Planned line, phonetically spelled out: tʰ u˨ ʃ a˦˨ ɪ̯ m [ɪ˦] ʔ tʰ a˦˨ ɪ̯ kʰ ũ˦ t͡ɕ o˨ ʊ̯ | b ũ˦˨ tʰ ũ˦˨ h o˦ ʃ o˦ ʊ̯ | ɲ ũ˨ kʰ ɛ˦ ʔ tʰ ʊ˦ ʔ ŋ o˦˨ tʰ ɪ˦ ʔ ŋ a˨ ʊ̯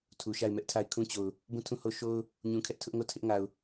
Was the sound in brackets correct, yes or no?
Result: no